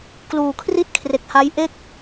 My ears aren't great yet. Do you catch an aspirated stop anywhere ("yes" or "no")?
yes